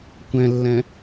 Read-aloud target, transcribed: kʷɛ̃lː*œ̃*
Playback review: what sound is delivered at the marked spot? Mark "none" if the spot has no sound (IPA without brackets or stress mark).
ɛ̃